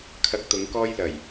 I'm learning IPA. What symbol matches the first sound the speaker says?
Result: kʰ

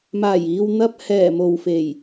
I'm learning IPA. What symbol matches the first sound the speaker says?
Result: m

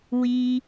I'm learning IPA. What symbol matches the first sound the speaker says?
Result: w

